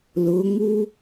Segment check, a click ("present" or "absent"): absent